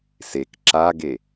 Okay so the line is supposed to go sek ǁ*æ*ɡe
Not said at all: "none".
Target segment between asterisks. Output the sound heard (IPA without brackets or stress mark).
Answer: a